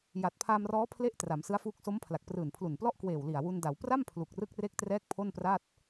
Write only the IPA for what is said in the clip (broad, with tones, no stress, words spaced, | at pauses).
ja˨˩t̚pʰaː˧mrɔː˦˥pʰle˦˥ʔ tra˩˦msɯ˦˥a̯fuː˦˥k̚ so˦˥mpʰla˨˩k̚prɯː˨˩n pʰlu˨˩nplɔ˥˩ʔ kweː˨˩w li˨˩a̯wu˧nda˩˦w pra˥˩m pʰlu˨˩k̚rɯ˥˩k̚re˥˩k̚ trɛː˥˩k̚pʰo˥˩npra˥˩t̚